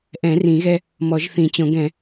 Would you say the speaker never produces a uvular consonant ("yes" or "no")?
yes